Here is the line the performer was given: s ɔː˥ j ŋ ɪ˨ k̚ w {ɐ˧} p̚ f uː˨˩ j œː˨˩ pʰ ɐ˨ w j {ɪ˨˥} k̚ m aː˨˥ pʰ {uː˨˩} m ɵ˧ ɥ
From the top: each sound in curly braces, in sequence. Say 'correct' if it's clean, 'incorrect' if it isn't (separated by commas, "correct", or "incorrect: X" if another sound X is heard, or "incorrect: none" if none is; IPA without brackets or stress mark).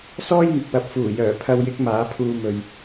incorrect: ɐ˨˥, correct, incorrect: uː˧